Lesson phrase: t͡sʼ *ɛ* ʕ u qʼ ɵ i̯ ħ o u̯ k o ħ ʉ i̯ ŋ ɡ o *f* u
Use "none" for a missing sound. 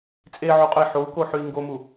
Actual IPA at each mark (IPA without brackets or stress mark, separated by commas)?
e, m